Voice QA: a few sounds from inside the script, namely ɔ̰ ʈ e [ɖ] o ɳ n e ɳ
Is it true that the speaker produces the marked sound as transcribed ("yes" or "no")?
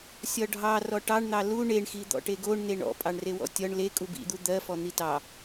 no